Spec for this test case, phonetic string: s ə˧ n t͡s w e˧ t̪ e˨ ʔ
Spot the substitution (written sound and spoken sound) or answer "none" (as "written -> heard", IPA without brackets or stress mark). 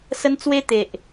none